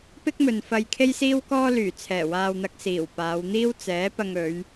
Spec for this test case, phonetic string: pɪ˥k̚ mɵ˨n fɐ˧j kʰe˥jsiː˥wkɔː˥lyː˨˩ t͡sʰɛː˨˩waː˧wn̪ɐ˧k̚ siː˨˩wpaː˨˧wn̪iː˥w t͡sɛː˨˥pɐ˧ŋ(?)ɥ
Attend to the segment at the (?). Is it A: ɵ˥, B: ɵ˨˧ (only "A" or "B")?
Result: B